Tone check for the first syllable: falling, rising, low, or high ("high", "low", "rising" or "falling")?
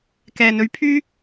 low